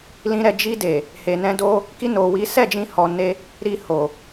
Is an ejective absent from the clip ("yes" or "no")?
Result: yes